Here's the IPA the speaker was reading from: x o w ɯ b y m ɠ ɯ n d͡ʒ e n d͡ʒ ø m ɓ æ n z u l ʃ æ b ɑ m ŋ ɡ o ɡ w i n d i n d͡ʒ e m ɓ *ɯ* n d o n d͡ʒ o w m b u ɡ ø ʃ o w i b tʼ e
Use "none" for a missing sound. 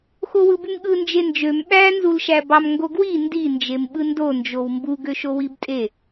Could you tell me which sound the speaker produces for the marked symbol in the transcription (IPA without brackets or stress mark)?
ɯ